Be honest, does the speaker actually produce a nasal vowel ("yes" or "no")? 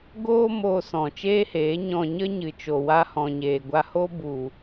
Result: yes